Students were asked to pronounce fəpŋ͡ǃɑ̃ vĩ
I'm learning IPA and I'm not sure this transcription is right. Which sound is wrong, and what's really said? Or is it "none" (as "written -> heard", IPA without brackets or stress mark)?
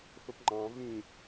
none